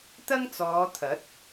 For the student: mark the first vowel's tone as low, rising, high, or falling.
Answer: high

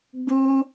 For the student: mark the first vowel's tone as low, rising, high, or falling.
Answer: high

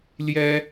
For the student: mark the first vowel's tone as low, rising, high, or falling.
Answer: high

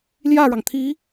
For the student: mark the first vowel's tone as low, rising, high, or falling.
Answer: falling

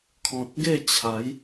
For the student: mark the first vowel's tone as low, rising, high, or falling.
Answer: low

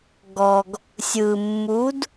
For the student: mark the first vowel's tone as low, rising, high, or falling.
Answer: low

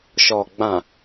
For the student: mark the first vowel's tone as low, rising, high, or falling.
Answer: low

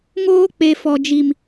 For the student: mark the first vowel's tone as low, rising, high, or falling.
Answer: high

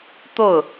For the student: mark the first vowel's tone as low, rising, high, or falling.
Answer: falling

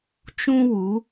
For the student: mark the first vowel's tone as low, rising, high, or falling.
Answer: high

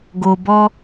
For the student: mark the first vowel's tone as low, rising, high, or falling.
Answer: low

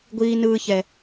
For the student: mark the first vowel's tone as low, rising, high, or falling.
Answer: high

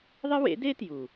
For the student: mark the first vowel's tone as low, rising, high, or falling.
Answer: high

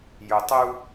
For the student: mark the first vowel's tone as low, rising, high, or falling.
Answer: low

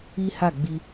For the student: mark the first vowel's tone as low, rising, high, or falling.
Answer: high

